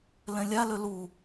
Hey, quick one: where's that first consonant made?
tongue tip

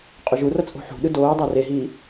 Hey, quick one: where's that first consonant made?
uvula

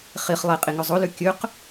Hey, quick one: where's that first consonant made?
uvula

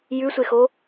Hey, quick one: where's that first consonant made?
palate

